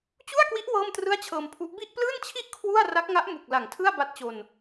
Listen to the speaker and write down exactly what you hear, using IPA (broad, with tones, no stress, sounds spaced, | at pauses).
t͡ɕ u˥˩ a̯ k w i˦˥ ʔ w ɤː˥˩ m t r ɯ˥˩ a̯ t͡ɕʰ ɤː˧ m pʰ u˦˥ ʔ b i˥˩ ʔ p l ɯː˥˩ n t͡ɕʰ i˥˩ ʔ kʰ w u˥˩ a̯ r a˦˥ k̚ ŋ a˦˥ ʔ m u˨˩ k̚ l a˨˩ ŋ tʰ ɯ˥˩ a̯ b a˦˥ t̚ t͡ɕ o˧ n